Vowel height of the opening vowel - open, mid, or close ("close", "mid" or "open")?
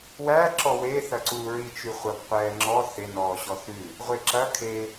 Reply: open